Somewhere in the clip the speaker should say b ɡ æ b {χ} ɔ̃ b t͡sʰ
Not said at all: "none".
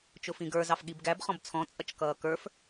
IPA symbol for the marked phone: χ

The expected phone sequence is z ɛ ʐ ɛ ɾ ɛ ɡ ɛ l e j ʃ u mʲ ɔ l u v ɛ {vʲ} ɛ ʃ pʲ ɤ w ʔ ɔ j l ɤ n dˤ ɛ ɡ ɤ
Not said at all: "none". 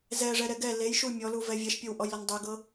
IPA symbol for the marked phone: vʲ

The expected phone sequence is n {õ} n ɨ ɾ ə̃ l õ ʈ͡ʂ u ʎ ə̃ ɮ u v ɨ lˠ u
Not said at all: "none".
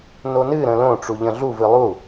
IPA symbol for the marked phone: o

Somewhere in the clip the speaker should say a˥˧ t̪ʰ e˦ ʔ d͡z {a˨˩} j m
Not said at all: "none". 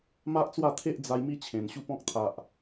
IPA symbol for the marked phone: a˧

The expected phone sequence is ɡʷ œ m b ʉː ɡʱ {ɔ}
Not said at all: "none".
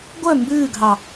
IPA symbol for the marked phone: ɑ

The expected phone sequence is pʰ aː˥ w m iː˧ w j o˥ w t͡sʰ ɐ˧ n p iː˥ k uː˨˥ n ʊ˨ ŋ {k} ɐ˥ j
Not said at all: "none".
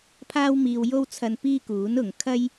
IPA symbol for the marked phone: kʰ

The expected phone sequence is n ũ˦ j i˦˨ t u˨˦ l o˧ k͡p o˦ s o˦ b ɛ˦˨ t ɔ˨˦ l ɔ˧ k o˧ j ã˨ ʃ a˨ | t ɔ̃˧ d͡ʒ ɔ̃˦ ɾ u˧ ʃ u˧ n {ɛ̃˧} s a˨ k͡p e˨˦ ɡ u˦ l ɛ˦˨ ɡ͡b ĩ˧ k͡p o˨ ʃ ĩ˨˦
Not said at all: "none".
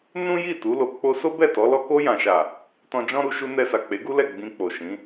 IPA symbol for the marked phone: ɛ˧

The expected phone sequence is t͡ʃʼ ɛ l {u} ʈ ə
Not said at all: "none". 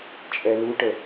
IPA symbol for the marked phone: u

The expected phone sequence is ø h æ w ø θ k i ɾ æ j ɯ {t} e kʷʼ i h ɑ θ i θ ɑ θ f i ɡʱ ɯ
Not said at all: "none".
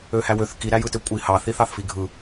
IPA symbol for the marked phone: t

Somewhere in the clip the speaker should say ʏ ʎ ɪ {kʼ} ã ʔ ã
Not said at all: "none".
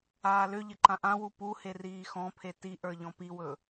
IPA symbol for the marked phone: ǃ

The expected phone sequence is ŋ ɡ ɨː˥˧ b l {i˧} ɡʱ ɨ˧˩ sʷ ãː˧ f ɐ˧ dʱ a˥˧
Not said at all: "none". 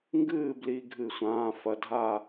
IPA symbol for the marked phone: i˧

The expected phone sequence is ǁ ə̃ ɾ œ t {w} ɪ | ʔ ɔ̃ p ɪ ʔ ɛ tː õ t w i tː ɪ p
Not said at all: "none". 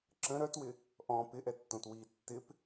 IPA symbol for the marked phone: w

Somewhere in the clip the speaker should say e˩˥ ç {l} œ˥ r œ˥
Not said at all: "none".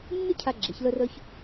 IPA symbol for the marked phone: l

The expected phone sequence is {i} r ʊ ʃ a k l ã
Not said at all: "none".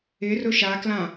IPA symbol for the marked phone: ɪ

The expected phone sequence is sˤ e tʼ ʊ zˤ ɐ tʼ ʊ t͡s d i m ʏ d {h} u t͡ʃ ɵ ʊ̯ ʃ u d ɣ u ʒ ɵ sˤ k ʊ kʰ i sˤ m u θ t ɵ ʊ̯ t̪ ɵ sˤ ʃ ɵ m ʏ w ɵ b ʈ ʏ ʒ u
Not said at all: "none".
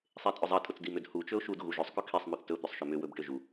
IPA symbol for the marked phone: h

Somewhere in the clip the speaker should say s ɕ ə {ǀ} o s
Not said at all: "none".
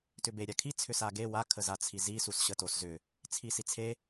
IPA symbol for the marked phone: t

